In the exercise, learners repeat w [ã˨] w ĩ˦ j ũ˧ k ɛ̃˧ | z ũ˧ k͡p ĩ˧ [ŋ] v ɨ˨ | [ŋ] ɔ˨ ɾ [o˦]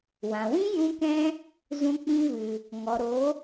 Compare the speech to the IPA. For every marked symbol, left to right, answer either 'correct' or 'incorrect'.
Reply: correct, incorrect, correct, incorrect

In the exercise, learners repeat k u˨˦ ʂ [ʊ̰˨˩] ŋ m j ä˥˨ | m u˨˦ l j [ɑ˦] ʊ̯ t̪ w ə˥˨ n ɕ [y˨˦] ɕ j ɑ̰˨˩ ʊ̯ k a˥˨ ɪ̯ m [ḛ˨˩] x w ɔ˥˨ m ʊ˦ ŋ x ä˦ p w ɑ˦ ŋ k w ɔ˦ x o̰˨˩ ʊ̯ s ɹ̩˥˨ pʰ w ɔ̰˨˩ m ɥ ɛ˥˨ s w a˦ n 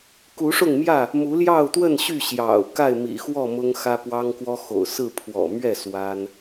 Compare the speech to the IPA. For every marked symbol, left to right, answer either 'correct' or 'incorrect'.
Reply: incorrect, incorrect, incorrect, incorrect

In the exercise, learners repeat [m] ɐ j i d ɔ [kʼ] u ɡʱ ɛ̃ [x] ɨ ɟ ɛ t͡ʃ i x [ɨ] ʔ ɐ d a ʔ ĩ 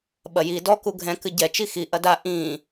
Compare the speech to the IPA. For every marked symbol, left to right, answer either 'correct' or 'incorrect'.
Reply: incorrect, incorrect, incorrect, incorrect

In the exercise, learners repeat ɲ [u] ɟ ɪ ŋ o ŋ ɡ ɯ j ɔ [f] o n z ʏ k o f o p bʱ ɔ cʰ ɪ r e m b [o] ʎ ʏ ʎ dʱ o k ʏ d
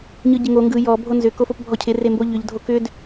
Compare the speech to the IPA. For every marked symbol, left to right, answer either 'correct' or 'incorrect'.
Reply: incorrect, incorrect, correct

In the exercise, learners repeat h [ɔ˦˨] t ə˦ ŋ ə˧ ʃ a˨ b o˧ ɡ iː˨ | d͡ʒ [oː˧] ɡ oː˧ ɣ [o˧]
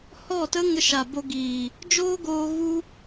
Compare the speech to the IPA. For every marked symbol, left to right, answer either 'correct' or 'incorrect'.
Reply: correct, incorrect, incorrect

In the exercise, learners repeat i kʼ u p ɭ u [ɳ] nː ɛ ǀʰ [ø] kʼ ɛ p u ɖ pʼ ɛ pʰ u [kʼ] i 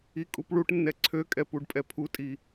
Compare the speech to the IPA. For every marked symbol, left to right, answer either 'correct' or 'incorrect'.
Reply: incorrect, correct, incorrect

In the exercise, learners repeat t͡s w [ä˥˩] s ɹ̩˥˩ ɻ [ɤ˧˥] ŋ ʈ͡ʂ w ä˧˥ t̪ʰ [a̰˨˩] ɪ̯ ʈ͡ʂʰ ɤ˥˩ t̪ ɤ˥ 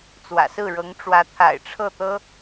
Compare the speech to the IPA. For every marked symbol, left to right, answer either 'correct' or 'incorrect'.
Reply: incorrect, correct, correct

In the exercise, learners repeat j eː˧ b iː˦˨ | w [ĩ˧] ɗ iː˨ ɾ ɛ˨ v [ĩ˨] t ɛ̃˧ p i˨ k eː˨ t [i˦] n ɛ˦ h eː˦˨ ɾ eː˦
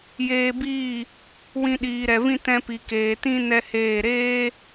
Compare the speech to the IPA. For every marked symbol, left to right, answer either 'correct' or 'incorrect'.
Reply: correct, incorrect, incorrect

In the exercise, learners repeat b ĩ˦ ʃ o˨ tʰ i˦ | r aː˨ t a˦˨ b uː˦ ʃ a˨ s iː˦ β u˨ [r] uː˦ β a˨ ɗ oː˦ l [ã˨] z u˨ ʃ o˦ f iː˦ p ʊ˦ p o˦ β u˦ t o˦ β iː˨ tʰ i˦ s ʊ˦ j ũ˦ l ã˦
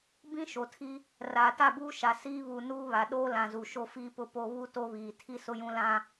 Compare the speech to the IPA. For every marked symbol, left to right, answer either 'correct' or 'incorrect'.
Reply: incorrect, correct

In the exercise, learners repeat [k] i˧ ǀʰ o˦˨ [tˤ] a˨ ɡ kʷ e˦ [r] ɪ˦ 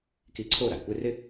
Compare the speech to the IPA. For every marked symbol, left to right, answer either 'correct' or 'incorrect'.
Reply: correct, incorrect, correct

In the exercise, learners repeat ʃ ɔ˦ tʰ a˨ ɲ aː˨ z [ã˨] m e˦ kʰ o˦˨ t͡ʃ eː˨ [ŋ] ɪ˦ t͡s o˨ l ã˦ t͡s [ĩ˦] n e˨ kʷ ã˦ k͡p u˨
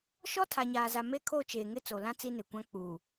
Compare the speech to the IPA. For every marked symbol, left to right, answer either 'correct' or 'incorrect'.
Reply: incorrect, correct, incorrect

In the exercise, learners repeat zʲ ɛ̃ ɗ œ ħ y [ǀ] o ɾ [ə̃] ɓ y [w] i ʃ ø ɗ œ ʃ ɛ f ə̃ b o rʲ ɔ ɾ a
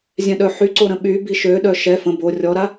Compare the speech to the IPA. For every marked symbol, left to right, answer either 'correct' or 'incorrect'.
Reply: correct, correct, incorrect

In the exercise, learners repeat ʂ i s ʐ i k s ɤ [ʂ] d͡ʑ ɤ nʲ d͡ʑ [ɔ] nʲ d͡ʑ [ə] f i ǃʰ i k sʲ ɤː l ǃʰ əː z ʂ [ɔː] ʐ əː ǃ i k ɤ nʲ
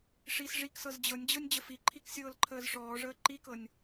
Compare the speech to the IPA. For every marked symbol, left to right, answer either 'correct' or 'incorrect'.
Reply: incorrect, incorrect, correct, correct

